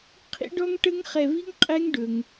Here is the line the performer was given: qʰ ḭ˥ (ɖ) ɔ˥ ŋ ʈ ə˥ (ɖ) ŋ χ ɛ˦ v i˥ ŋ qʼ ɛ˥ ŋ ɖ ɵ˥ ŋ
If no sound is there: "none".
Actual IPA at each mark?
ɖ, none

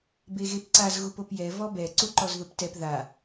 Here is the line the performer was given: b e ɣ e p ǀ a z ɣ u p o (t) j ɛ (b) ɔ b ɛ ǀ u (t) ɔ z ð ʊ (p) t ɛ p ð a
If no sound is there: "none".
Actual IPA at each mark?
p, v, ǃ, p

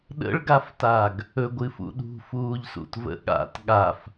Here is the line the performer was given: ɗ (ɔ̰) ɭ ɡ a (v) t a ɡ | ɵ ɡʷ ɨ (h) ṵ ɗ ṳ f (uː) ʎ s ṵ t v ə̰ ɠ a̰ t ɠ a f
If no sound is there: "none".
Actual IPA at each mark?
ə̰, f, f, uː

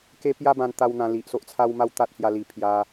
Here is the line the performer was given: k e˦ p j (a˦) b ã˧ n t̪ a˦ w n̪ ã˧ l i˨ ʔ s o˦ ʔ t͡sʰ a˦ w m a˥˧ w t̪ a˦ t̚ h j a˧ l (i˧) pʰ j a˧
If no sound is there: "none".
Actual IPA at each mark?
a˦, i˨˩

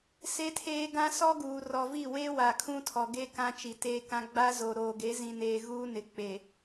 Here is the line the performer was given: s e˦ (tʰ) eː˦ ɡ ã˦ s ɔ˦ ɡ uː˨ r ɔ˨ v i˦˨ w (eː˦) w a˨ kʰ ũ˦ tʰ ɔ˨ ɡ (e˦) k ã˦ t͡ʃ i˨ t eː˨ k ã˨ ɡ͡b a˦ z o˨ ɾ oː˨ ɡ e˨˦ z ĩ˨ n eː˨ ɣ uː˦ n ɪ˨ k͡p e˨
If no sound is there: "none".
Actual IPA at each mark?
tʰ, eː˦, e˦

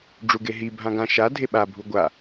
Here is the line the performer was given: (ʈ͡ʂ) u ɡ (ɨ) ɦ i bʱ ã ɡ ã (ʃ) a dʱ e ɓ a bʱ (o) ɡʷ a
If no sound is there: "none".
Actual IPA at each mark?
ɖ͡ʐ, e, ʃ, u

